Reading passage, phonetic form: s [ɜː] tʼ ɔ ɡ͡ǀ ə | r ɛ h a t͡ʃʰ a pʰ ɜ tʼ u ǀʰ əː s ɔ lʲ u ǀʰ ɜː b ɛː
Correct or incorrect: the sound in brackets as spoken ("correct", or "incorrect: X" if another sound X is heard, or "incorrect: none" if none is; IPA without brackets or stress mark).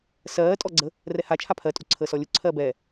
correct